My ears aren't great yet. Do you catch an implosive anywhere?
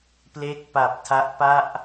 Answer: no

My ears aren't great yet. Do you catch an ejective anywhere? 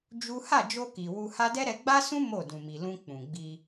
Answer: no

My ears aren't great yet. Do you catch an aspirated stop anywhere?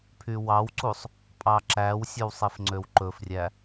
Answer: yes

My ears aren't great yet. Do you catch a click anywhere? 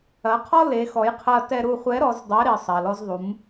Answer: no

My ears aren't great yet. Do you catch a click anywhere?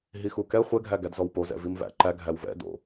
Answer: yes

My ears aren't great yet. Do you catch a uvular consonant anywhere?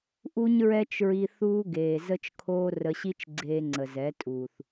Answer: no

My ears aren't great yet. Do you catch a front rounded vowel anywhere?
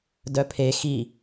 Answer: yes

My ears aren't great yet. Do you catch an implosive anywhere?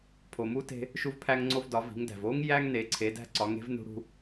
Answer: no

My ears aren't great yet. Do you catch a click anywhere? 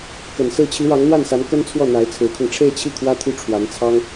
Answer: no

